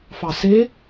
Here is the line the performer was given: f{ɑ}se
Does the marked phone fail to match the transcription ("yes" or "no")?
no